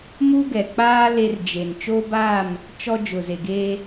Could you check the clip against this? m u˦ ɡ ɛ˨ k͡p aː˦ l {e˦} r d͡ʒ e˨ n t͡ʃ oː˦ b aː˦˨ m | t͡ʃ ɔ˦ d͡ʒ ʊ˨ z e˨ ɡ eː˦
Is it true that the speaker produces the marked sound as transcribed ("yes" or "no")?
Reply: yes